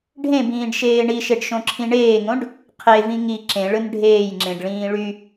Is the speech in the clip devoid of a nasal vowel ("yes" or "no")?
no